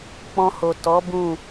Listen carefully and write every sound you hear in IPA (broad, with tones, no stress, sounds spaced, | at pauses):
k͡p ɔ̃˧ h o˨ t ɔ˨˦ b ũ˦˨